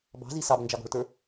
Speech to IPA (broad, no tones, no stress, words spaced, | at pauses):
bɑ̤zi sɑbnd͡ʒɑɡɔ̤ɭtə˞